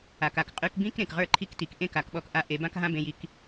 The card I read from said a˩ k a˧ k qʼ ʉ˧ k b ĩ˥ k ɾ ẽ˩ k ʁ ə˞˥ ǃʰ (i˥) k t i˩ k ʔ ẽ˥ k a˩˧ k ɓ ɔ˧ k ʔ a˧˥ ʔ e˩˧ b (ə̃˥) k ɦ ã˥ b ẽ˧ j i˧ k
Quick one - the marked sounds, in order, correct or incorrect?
correct, incorrect

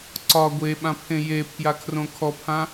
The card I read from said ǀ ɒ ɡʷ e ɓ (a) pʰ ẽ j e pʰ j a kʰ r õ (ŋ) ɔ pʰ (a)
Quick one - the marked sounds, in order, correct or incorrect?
incorrect, incorrect, incorrect

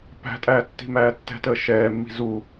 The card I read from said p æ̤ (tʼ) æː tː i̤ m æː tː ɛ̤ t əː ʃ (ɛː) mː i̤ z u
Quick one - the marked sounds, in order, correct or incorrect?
correct, correct

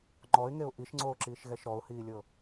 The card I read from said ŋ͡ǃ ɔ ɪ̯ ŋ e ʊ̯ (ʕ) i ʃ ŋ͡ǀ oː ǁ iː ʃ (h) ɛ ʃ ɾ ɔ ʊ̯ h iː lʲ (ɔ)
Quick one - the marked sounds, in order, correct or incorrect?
incorrect, incorrect, incorrect

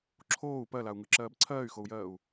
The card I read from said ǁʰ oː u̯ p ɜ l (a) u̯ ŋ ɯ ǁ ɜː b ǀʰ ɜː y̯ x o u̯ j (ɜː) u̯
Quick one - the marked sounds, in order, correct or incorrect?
correct, correct

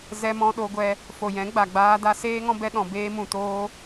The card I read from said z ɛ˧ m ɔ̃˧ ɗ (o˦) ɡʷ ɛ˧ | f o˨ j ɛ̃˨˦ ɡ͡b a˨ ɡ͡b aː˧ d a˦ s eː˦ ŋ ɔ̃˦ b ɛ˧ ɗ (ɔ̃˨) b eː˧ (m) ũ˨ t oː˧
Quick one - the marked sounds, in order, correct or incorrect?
incorrect, correct, correct

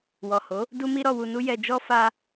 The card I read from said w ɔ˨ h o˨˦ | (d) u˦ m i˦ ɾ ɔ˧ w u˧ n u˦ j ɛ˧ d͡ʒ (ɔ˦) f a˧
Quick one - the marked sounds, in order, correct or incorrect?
correct, correct

